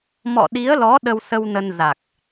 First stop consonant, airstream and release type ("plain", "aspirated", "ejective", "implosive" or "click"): implosive